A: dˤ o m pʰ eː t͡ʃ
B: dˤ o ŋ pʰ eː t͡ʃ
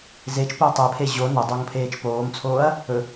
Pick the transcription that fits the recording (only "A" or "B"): B